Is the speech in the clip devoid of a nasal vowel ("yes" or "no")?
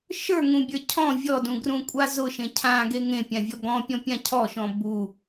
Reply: no